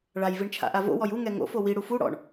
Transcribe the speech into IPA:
ɭ a j v i ɳ t͡ʃʰ a̰ ʔ a v o̰ w ɔ j u ŋ ɛ ŋ o̰ f o w i ɽ u f u ɽ ɔ̰ ɳ

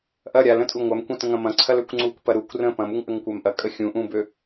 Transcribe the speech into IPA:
ʔ ɐ ɾʲ a l ə̃ tʼ u ŋʷ a m kʷ ɐ̃ t ə̃ ŋ ɐ̃ m ɐ̃ ǀʰ ɐ l ø kʷ ŋ͡ǀ u kʷ p ɐ ɾ u kʷ r ə̃ p ɐ̃ m u ŋ ʔ ə ŋ kʷ a m ʔ ɐ kʼ ə xʲ ũ ʔ ũ b ø

